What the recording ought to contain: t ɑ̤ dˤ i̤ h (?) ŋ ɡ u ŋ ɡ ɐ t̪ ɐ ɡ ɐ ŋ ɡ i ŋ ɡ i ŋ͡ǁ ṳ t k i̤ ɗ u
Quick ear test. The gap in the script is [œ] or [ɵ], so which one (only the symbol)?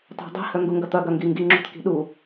œ